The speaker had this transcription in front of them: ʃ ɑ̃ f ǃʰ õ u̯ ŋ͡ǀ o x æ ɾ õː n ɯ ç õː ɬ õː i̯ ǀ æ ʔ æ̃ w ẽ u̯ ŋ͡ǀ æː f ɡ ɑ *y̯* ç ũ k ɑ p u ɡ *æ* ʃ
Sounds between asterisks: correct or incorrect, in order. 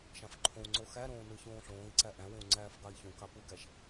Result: incorrect: i̯, correct

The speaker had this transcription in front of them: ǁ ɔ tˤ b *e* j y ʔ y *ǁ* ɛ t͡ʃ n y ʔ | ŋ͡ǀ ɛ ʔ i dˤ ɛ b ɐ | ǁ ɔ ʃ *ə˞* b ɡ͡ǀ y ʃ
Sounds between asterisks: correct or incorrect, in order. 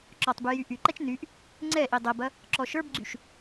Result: incorrect: y, incorrect: ǃ, correct

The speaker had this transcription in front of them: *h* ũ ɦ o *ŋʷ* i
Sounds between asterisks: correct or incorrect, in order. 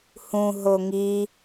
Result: correct, incorrect: ŋ

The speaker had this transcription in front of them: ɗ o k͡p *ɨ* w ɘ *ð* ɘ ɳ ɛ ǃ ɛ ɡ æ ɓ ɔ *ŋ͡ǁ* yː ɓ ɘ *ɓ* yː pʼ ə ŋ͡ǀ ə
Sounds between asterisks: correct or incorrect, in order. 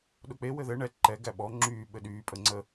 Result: incorrect: e, correct, correct, incorrect: ɗ

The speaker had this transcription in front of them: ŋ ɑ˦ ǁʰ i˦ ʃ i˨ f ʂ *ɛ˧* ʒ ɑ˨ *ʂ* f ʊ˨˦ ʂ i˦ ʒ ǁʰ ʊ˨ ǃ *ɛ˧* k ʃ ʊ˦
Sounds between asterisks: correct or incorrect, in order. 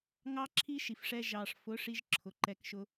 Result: correct, correct, correct

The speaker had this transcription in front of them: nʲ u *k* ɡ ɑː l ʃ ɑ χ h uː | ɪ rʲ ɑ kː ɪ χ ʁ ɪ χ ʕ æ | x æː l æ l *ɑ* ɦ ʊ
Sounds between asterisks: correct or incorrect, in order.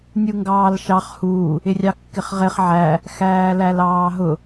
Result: incorrect: ŋ, incorrect: ɑː

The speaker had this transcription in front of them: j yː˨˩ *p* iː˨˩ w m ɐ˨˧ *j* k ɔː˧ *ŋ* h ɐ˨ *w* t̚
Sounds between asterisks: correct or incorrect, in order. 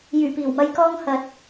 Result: correct, correct, correct, incorrect: none

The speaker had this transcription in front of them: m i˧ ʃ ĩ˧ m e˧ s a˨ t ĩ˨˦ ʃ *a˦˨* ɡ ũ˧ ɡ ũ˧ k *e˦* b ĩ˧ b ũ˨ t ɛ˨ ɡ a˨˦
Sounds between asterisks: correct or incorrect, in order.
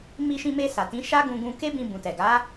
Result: incorrect: a˦, correct

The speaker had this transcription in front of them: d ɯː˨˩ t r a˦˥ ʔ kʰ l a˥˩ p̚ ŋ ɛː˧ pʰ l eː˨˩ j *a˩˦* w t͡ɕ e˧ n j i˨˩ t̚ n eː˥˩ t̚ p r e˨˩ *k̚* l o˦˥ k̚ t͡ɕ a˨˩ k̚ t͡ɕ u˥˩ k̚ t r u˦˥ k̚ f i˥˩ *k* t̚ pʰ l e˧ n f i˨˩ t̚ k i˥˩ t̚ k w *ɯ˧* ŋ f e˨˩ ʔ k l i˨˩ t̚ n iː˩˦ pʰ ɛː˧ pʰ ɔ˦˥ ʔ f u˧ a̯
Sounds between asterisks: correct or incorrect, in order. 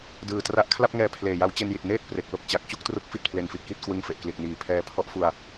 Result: incorrect: a˦˥, correct, incorrect: none, correct

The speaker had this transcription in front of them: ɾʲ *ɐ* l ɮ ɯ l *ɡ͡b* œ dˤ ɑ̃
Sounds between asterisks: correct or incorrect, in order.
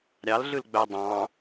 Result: incorrect: ɑ, correct

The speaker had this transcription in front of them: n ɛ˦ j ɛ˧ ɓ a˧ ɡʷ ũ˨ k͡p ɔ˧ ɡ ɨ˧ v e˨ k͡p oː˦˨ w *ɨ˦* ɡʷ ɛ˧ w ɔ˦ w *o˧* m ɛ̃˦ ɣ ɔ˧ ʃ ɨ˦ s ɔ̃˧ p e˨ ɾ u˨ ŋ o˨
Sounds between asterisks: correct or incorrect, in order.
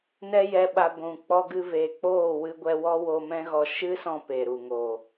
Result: incorrect: ɨ˧, correct

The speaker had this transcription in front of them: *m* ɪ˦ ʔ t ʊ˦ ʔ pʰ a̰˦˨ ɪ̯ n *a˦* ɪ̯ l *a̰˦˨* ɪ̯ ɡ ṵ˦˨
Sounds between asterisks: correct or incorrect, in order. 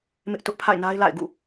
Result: correct, correct, correct

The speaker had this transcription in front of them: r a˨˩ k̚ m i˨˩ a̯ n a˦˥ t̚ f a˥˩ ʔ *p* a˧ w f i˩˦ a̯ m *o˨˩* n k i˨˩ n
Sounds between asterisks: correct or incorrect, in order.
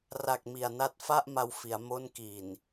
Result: incorrect: m, incorrect: o˦˥

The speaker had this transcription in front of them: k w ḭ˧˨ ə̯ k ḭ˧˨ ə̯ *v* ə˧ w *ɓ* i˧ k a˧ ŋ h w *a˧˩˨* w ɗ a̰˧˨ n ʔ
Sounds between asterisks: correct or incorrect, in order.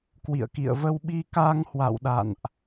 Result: correct, correct, incorrect: a̰˧˨

